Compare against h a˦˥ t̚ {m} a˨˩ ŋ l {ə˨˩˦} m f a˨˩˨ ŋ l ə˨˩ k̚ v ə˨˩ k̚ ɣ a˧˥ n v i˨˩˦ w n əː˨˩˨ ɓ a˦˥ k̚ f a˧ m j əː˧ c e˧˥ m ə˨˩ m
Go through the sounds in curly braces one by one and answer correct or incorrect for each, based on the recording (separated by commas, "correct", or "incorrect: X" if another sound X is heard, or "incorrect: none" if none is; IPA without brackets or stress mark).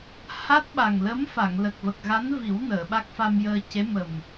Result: incorrect: ɓ, incorrect: ə˧˥